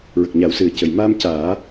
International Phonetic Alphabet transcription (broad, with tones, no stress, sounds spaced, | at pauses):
ɹ ə˨˩ k̚ ɲ aː˨˩˦ w s ɨ˨˩ ə̯ c ə˨˩ j m aː˧ m c aː˨˩˦